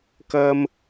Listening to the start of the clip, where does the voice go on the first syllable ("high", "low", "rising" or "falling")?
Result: high